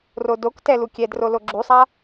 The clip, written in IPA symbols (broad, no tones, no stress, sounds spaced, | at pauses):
r o d o k t ɛ l u kʲ ɛ d r o l o ɡ͡ǁ u sˤ a